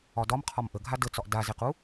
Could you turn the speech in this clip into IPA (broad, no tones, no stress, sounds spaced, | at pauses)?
ɒ d ɒ m qʰ ɒ m ʔ ə ɡʱ a d ə t͡s ɒ ʔ d a z e q u